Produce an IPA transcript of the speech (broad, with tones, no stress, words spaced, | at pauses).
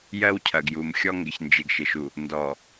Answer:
jɜ˦wcʰɐ˨ɡju˨mxʲɔ˦ ŋɡɪ˨çnd͡ʒɪ˨ɡ ʃɪ˨ʃu˨ | ndɔ˨